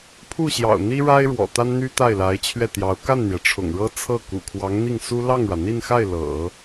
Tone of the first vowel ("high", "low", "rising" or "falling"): falling